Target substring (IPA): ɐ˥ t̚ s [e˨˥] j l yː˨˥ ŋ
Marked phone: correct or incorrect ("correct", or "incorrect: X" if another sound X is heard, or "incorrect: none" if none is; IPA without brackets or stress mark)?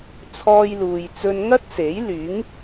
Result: correct